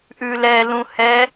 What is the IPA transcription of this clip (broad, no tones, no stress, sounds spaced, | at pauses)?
ʔ ʉ l ɛ l ũ h ɛ